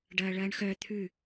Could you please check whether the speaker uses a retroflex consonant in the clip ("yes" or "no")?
yes